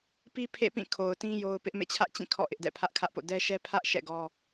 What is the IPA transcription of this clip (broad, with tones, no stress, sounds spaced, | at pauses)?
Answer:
p i˦ pʰ ḛ˦˨ p ĩ˦˨ kʰ o˨ ʊ̯ t ĩ˦ j o˦ ʊ̯ p ɪ˦ ʔ m ḛ˦˨ t͡ɕʰ ä˦ ʔ t͡ɕ ĩ˦˨ kʰ ɔ̰˦˨ ʔ ɪ˦ ʔ d ɛ̰˦˨ pʰ ä˦ ʔ kʰ ä˦ ʔ p o̰˦˨ d ɛ˦ ʃ ɛ˦ pʰ ä˦ ʔ ʃ ɛ̰˦˨ ɡ ɔ˦